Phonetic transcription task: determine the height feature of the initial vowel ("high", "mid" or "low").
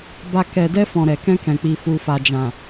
low